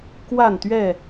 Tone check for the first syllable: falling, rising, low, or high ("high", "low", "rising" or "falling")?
falling